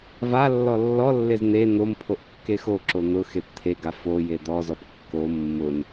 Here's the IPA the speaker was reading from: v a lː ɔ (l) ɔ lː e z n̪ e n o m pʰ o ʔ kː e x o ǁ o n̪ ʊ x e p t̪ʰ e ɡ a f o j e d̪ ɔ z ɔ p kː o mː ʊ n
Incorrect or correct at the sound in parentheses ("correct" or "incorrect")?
incorrect